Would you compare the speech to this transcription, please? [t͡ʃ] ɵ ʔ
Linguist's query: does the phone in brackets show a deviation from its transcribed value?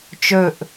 no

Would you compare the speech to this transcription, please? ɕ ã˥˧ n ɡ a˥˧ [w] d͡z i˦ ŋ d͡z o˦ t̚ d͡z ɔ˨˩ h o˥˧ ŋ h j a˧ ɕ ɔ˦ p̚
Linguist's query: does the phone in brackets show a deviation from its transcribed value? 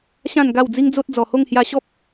no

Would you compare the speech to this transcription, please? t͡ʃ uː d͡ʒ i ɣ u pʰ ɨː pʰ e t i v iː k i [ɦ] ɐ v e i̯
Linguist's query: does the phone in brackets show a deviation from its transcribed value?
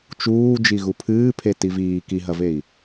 no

